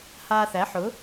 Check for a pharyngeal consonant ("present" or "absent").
present